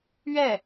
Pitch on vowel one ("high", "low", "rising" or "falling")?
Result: falling